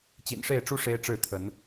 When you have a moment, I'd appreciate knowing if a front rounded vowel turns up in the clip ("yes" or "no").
no